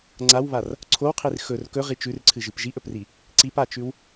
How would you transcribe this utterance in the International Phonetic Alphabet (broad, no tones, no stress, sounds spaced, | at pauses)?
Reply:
ŋ͡ǀ a w β a r | ǀʰ o w qʰ i r x ɵ r k ɵ ʁ i t͡ʃ ʉ r ǀʰ ɨ ʒ ɨ p ʒ i ʔ ɵ p r i | ǀ i p a t͡ʃ ʉ w